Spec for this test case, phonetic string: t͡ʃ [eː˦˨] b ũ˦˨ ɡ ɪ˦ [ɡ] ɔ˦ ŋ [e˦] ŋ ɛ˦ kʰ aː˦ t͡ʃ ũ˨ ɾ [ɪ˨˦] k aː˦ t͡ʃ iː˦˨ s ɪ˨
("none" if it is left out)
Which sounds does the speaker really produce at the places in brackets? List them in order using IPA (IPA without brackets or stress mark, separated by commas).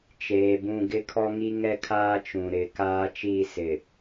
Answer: eː˨, kʰ, i˦, ɪ˨˦